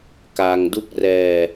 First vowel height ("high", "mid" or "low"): low